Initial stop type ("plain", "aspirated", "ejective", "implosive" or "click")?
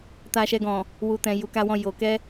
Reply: plain